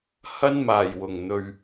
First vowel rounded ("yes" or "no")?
no